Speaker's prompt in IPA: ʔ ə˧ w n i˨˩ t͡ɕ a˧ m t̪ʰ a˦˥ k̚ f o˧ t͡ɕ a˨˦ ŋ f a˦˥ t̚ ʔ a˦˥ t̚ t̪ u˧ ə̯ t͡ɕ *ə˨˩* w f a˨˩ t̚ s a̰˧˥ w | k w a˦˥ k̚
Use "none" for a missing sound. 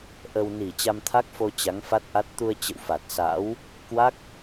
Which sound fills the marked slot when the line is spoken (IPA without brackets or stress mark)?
ə̰˧˨